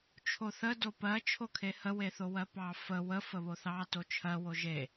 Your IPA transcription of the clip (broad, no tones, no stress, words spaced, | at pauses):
t͡ʃʰoθə dopɜ t͡ʃʰokʰehə weθowɜpɑ fə wə fəβoθɑ tot͡ʃʰɜ woʒe